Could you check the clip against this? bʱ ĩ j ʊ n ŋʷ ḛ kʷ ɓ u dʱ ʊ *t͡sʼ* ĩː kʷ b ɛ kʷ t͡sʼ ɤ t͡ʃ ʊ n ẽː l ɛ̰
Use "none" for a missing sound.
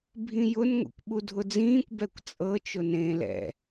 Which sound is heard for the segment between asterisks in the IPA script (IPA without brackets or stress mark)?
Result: d͡z